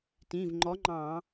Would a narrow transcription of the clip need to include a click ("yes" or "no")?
yes